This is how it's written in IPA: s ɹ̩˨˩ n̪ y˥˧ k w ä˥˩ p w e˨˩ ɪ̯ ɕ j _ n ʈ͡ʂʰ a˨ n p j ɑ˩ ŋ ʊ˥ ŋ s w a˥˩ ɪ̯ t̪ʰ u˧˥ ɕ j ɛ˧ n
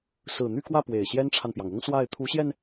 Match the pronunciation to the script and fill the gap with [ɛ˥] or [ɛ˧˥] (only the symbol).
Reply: ɛ˥